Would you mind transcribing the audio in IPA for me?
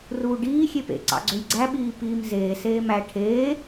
r uː ɖ iː xʲ e p ḛ ǀ ɑ̰ ɡ͡ǀ ø j ɡ͡ǀ æ ɓ iː p iː m z eː s eː m æ ʈʰ eː

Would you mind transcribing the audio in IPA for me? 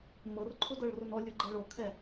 m ɤ r ǃʰ ʊ d ɤ ɭ r ʊ n ɔ lʲ ʊ ɡ͡ǃ ɛ ɭ o kʰ ɛ

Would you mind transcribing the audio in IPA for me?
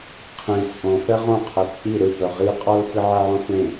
qʰ ĩ t͡sʼ õ f ɛ ʁ õ qʰ ɛ t͡sʼ i ɾ ɯ p œ ʁ i qʼ ɔ l f i ʕ ɛ ʕ õ f ẽ

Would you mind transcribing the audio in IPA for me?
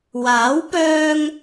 w aː˨˥ w p œː˧ ŋ

